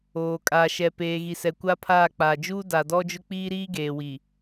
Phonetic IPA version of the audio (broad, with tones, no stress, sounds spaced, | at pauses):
oː˨ kʼ aː˨ ʃ ɛ˨ p eː˨ ɣ i˨ s ɛ˨ kʷ a˦ pʰ aː˦˨ k͡p aː˨ d͡ʒ uː˦ d a˨ d ɔ˦ d͡ʒ ʊ˦ k͡p iː˦ ɾ iː˦ ɡ eː˨ w i˨